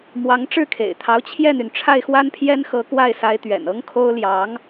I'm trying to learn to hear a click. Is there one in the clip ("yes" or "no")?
no